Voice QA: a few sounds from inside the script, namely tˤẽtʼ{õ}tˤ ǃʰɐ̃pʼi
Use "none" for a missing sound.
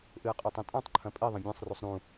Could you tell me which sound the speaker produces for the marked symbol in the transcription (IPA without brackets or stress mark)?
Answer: ũ